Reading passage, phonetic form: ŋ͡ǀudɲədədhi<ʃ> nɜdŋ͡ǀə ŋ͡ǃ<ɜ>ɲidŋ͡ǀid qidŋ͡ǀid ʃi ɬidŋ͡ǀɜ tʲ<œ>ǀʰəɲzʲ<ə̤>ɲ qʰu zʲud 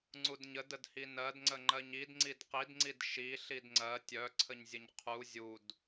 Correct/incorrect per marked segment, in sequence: incorrect: none, correct, correct, incorrect: ə

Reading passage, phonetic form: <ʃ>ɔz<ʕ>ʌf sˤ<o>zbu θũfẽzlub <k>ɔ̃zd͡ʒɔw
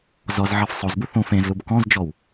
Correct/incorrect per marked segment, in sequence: incorrect: z, correct, correct, correct

